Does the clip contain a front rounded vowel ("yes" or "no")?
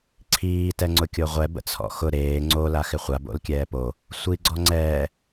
no